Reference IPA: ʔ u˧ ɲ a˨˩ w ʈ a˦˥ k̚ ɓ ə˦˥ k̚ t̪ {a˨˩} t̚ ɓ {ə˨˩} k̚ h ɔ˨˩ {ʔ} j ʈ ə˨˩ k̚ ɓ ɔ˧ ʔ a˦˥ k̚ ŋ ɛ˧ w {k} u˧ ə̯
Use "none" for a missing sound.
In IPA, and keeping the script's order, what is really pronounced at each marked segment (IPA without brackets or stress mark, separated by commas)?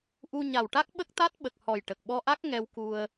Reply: a˦˥, ə˨˩, none, k